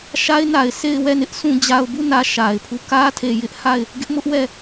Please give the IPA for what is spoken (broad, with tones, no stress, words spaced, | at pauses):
ʃa˦ɪ̯na˨ɪ̯sʰe˦˨ɪ̯ wɛ˦˨nɪ˦ʔ sʰũ˨d͡ʑa˨ʊ̯bu˦˨ nä˦ʃa˨ɪ̯pʰu˦˨ kä˦tʰe˨jɪ˦ʔha˦˨ɪ̯ | ɡɪ˦ʔmʊ˦ʔwɛ˦˨